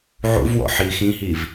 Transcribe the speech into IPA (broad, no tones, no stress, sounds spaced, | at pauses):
ʕ ṵ v w ɔ̰ ħ iː x ĩ ɦ i v